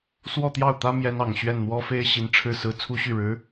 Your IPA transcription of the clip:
s w ɔ˥˧ t̪ j ɑ˥˩ ʊ̯ t̪ ä˥ m j ɛ˥ n ɑ˨˩ ŋ ɕ ɥ ɛ˥˩ n n̪ w ɔ˥ f e˥ ɪ̯ ɕ i˧˥ n ʈ͡ʂʰ ɻ̩˥˩ s ɹ̩˥ t͡sʰ u˥ ɕ y˥˩ ɻ ɻ̩˧˥

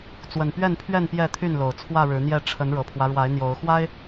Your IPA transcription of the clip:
t͡s w ə˨˩ n p ɥ ɛ˥˨ n pʰ ɥ ɛ˥˨ n p j ɛ˥˨ t̪ʰ y˥˨ n l o˨˩ ʊ̯ t͡sʰ w ä˥˨ ɻ ɻ̩˨˦ n̪ j ɛ˥˨ ʈ͡ʂʰ ə˨˦ n ɻ ɤ˨˩ pʰ w ä˦ ɻ w a˨˦ ɪ̯ n̪ j o˨˦ ʊ̯ x w a˦ ɪ̯

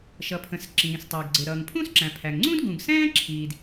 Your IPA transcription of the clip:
ʃ ʌ˩ pʰ ə̃˩ s ǁ ĩː˩ s tˤ ə˞˩ ɡ ɡ͡ǀ ɪ˩ ɾ ʌː˩ ŋ pʰ ũ˥ s ǁ æ̃˩ pʰ æ˩ ŋ ŋ͡ǀ ũ˥ d ɡ ũ˩ ɡ s ɛ̃ː˥ ǁʰ iː˩ d

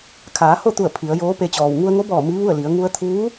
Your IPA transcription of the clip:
kʰ aː˩˧ h o˥˨ t̪ u˧˩ ə̯ pʰ i˩˧ ə̯ j oː˧˥ p e˧ t͡ɕ ɔː˩ w ŋ u˧ ə̯ ŋ o˧˥ b ɔː˧˩ m i˧˥ ʋ u˥˨ ə̯ l i˩˧ ə̯ ŋ u˧ ə̯ t̪ʰ uː˧˥

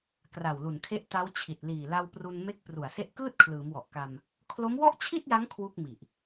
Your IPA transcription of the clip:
k r a˨˩ w l u˨˩ n kʰ e˦˥ ʔ t a˦˥ w t͡ɕʰ i˨˩ t̚ l iː˨˩ l a˧ w p r u˧ n m e˦˥ k̚ p r u˨˩ a̯ s e˦˥ ʔ k ɯː˥˩ t̚ kʰ l ɯː˩˦ m w ɔ˨˩ ʔ k a˧ m | kʰ l o˦˥ m w ɔ˥˩ ʔ t͡ɕʰ i˥˩ t̚ j a˦˥ ŋ kʰ w u˥˩ k̚ m i˨˩ ʔ

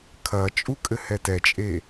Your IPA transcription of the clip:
kʰ ɐ t͡ʃʼ u kʼ ɘ h ɛ t ɛ t͡ʃʼ e

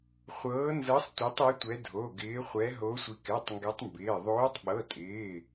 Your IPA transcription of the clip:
χʷ ɤː˨˦ n z ɤ˨˦ sˤ tʷ ɛ˨˦ tˤ i˨˦ tʷ ɛ˨˦ dʱ o˩˧˩ ɡ ɪː˨˦ χʷ ɛ˨˦ ɦ o˨˦ sʷ i˨˦ k ɛ˩˧˩ tˤ ŋ ɡ ɛ˨˦ tˤ m b ɪː˩˧˩ ðˤ oː˨˦ tˤ ɓ ɤ˩˧˩ tʼ ɪː˩˧˩

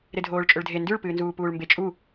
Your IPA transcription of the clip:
ɾ e dʱ oː ɭ t͡ʃʼ ɵ ɭ dʱ e n d ʉ ɭ p ɨː n z uː p uː ɭ m b e t͡ʃʼ u

